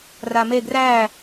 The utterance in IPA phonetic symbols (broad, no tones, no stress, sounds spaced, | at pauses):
r a m e ɡ r æ